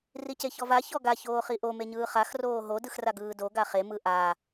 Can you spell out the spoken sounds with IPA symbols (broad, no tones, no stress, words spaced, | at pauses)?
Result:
riceçɔva çɔɡa çoːχiʔo meɲɯːχax roːɦo dɯxraɡɯːdo ɡaχe mɯʔa